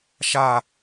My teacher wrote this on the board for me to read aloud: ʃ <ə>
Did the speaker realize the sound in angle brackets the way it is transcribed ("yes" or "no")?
no